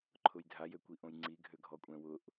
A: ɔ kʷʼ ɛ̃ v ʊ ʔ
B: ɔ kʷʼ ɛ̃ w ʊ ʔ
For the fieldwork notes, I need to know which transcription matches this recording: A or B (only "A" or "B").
B